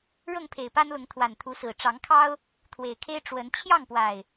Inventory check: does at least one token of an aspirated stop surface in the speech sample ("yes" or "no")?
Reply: yes